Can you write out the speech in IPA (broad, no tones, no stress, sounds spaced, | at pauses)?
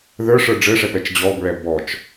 ð ə˞ ʂ ə˞ ɖ͡ʐ ɘ ʂ ɛ p ɛ t͡ʃ d͡ʑ ɔ b ɹ ɛ b ɔ t͡ʃ